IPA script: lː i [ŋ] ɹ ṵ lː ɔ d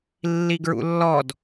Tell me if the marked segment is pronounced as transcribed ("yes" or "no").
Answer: no